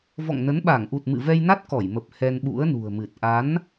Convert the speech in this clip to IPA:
v ɔ̰˧˨ ŋ n ə˨˦ n ɓ a˧˩ ŋ ʔ u˨˩ t̚ m ɨ̰˧˨ v ɛ˧ j n a˦˥ t̚ k ɔ˧˩ j m ə˨˩ p̚ h ɛ˧ n ɓ ṵ˧˥ ə̯ n ṳ˨˩ ə̯ m ɨ˨˩ t̚ ʔ a˨˦ n

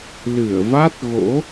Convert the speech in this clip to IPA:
l ɨ˧˩ ə̯ v a˦˥ t̚ ɣ o̰˧˥

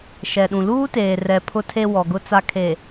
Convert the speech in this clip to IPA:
ʃ ɛ˨ ɗ ũ˨ l uː˦ t eː˨ r ɛ˨ pʰ ʊ˨ tʰ e˨ w ɔ˨ ɡ ʊ˦ t͡s a˦ kʰ e˨

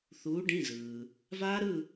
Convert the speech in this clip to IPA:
θ uː˩˧ ɖ ĩ˩˧˩ z ɯː˩ | v aː˦˥ ɾ ɯ˦˨

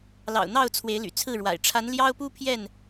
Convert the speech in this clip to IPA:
l ɑ̰˨˩ ʊ̯ n̪ ɑ˥˨ ʊ̯ t͡sʰ w e˨˦ ɪ̯ l y̰˨˩ t͡sʰ ɹ̩˥˨ ɻ w a̰˨˩ ɪ̯ ʈ͡ʂʰ a˨˦ n l j ɑ˦ ʊ̯ p u˦ pʰ j ɛ˥˨ n

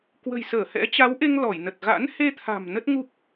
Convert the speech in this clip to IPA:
k w ə̤˨˩ j s əː˧˩ h ɛ̰˧˥ t͡ɕ a˨˦ w ʔ e˧ ŋ l ɔ˧˩ j n ə˨˩ t̚ ɣ a̰˧˥ n h e˧ t̪ʰ a̤˨˩ m n ə˦˥ t̚ ŋ u˦˥ p̚

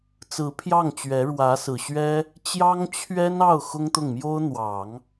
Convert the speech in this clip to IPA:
t͡s ɹ̩˧˥ pʰ j ɑ˥˩ ŋ t͡ɕ ɥ ɛ˧˥ ɻ w ä˧˥ s ɹ̩˨˩ ɕ ɥ ɛ˥ | t͡ɕ j ɑ˥ ŋ t͡ɕʰ ɥ ɛ˥ n ɑ˥˩ ʊ̯ x ʊ˥ ŋ t̪ ʊ˥˩ ŋ m j o˥ ʊ̯ n̪ w ɑ˨˩˦ ŋ

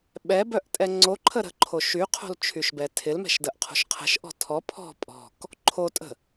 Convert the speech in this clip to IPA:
ɓ ɛ b œ ʔ tʼ ɛ ŋ͡ǀ o ǃʰ ə ɾ ə̤ ǃʰ o ʃ y qʰ o̤ l t͡ʃʰ y ʃ b ɛ tʰ ɪ l m ɛ̤ ʃ d ə ʔ qʰ o̤ ʃ qʰ ə̤ ʃ ʔ ɔ̤ tʰ ɔ pʰ ɔ̤ pʼ ɔ̤ k | ǃʰ o tʼ ə̤

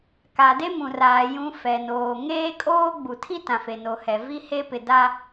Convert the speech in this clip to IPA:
k a˨ d e˦ m ũ˨ r aː˨ j ũ˦ f ɛ˨ n oː˨ ŋ eː˦ kʼ oː˦ ɡ͡b u˨ tʰ i˦ t ã˨ f e˨ n o˨ h ɛ˨ v i˦ h e˦ p ɪ˨ d a˦

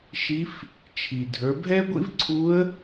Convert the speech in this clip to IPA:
ʃ i˧˥ f | t͡ʃʰ i˩ dʱ ə˞˩˧ bʱ ɛ˥ ɡʷ ḭ˥ v ǀʰ u˧˥ ə̯

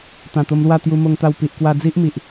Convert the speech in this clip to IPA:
t̪ ã˨˩ t̪ o˧ m l w a˥˧ t̪ j u˧ m o˧ ŋ t̪ a˧ w p i˨ ʔ k w a˧ d͡z i˦ ʔ m i˨ ʔ

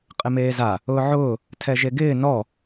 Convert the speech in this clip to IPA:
qʼ ɪ m eː z a | ʊː ʕ ʊː | tʰ ɛ ʒ e ɡ ɪː n ɔ

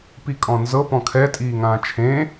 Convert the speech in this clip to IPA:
p i kʼ ɔ̃ n z ɤ p ɔ̃ kʰ ɛ tʼ iː ŋ ãː t͡ʃʰ ẽ

